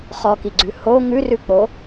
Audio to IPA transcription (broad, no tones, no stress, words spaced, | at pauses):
χɔkiɡ͡ǀʉ ho ŋʉrʉk͡po